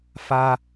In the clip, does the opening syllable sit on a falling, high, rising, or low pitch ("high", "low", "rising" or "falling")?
high